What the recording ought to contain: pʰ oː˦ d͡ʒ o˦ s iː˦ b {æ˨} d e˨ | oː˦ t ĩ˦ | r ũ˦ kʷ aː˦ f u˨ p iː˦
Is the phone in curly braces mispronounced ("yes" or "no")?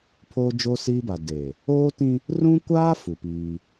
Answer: yes